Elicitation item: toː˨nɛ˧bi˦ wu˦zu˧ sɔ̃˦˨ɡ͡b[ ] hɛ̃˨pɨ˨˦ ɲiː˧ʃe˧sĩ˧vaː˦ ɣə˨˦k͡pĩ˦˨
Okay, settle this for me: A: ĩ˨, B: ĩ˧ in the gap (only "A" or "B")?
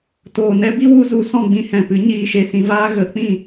B